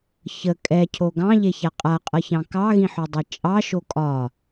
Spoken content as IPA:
ç ə kʼ ɛ cʰ o ɡ ɑ̃ ʎ e ç a qʼ a qʼ ʌ ç ɑ̃ k ɑ ɣ ĩ ħ o dˤ ɛ t͡ʃʼ ɑ ʃ o kʼ ɒ

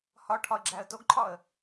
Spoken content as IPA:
h ɒ ʈʰ ɒ ə̯ ɡ͡ǁ æ ə̯ t o ɡ ǃʰ ɒ ə̯

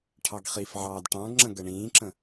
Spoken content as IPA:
ʈʰ ɑ ɡ χ i f ʕ ɑː d ʈ ɑ̃ ɡ ŋ͡ǁ ə̃ ɡ ə ɳ ĩː ǁ ə̃

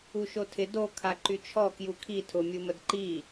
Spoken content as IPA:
u ʃ o tʰ ɪ d o kʰ a ǃ y t͡ʃʰ ɔ k j u kʰ i tʰ ʊ mʲ u m ə d ǃ i

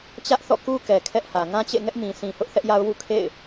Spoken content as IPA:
t͡ɕ ä˦ ʔ θ ɔ̰˦˨ k u˦ k ɛ˨ kʰ ɛ˦ ʔ h ä˨ ŋ ã˦ t͡ɕ ḛ˦˨ ŋ ɛ˦ ʔ m ĩ˨ sʰ ĩ˨ h ʊ˦ ʔ θ ɛ˦ ʔ j a˦ ʊ̯ w ṵ˦˨ kʰ ḛ˦˨ ɪ̯

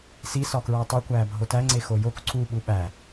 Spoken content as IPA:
s i s ɒ k ɹ æ tˤ i kʷ æː bʱ o t æ ŋ͡ǀ e x o j o k ǀ u ɓ u ɓ æ

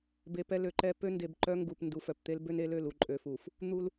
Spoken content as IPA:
b e˨ p ɛ˦ l ø˨ ǃ ɛ˦ p ø˦ n d e˨ b ǃ œ˦ ŋ ɡ u˨ p n d u˨ f œ˨ p t̪ e˦ l b ø˦ n e˦ l ø˦˨ l u˨ ǃʼ ø˨ f u˨ f | n̪ u˦ l

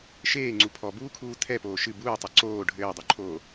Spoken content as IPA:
ʃ eː ŋ͡ǀ u pʰ ɔ b uː kʰ uː tʰ ɛ p oː ʃ ɨ b uː tˤ o ǀ oː ɖʱ ɘː dˤ u ǃʰ oː

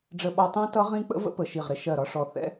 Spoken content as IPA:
ɖ͡ʐ ə˧ ɓ ɒ˧ tˤ æ̃˦˥ t ʌ˦˥ ʁ ĩ˦˥ k͡p ə̰˦˥ v ə̰˦˥ p ə˧˩ ʃ i˧˩ ʁ ɾ ɪ˧ ʃ ɜ˧˩ ɾ ɒ˧ ʂ ɔ˧˩ θ ɛ̰˦˥

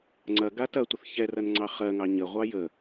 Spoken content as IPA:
ŋ͡ǀ ɐ ɡ a t ɐ tʷ ə θ ç ɛ r ɐ n ŋ͡ǀ ɑ χ ɜ ŋ ɑ ɲ ə ʁʷ ɑ j ə

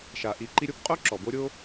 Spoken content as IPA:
ʃ a˩ ʔ i˨ ǃ i˦ ɾʲ o˥ p qʼ o˥ ǁ ɔ˩ b o˦ ɾʲ o˦

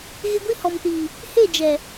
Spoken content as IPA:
ɣ ɪ˦ ɡʷ i˦ h ɔ˨ m t iː˨ | h e˦˨ d͡ʒ ɛ˨

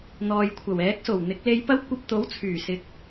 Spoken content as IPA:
n̪ ɔː˨ j kʷʰ ɐ˨˩ w ɛː˨˥ k̚ s o˨˩ w n̪ ɪ˨˥ k̚ l e˧ j p ɐ˥ w kʷ ɐ˧ p̚ t̪ o˨˥ w t͡sʰ yː˨˩ s ɪ˨˥ k̚

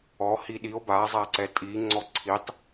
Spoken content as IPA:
ɔ h i ɗ i o̯ b a zˤ a ǀ ɛ tʼ i ŋ͡ǀ ɔ ǀʰ i tˤ

